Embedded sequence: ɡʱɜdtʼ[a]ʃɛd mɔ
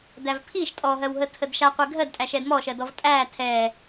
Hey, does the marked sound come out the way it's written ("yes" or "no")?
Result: no